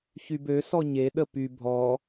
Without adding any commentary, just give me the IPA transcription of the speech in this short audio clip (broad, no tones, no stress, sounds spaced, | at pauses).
ç y b ø s ɔ ɲ e ɗ ə p y bʱ ɔ